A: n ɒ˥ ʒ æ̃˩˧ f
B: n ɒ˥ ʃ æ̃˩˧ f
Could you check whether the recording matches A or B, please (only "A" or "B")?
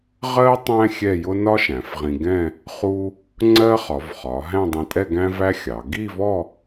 B